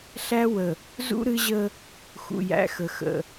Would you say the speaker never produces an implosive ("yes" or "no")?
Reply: yes